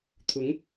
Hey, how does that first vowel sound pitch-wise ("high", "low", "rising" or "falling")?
rising